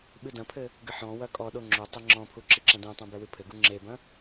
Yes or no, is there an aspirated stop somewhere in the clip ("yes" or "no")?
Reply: yes